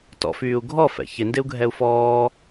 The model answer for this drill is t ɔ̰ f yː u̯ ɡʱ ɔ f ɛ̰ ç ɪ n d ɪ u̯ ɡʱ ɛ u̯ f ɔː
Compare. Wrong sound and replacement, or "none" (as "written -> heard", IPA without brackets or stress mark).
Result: none